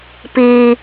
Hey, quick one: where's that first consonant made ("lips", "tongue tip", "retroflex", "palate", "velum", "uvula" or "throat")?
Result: lips